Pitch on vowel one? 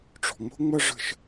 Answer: low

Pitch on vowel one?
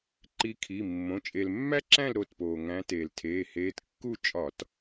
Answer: rising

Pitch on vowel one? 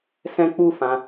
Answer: high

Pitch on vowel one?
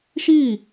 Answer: falling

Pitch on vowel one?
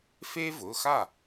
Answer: high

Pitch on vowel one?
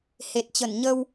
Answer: low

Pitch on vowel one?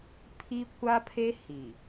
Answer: high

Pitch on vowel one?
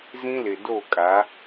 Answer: high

